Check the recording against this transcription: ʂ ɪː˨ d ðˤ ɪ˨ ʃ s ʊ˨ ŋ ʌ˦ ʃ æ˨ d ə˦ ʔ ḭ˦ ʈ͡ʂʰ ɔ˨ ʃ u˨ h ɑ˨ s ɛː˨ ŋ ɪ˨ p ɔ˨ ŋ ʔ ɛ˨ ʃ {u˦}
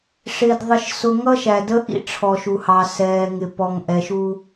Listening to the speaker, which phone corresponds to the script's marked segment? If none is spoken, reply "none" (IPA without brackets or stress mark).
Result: u˦